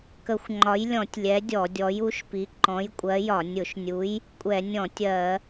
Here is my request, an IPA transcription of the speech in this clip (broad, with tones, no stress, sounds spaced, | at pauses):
k ə˧˩˧ xʷ ŋ͡ǃ ɒ˨˥ j lʲ ɔ̃˧˩˧ tʲ lʲ ɛ˨˥ dʲ ɔ˧˩˧ dʲ ɔ˨˥ j u˨˥ ʃ p i˨˥ ǃ ɔ̃˨˥ j kʷʼ ɜ˨˥ j ɒ˧˩˧ nʲ ʊ˧˩˧ ʃ nʲ u˨˥ j | kʷʼ ɛ˧˩˧ nʲ ɔ̃˧˩˧ tʲ ɜ˧˩˧